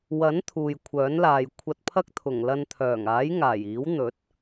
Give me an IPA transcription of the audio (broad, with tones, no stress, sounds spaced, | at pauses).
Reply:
w ɐ˨˥ n t̪ʰ uː˨ j kʷʰ œː˨˥ n l aː˨ j kʷʰ ɐ˧ t̚ pʰ ɐ˥ k̚ t̪ʰ ʊ˨˩ ŋ l ɐ˧ n t̪ʰ œː˨˩ ŋ aː˨˥ j ŋ aː˨˩ j iː˨˥ w n̪ ɵ˨˥ t̚